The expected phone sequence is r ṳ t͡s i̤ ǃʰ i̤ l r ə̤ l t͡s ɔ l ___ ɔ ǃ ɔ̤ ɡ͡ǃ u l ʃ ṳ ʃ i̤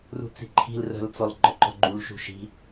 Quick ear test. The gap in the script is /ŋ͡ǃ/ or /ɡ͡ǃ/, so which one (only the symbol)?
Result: ɡ͡ǃ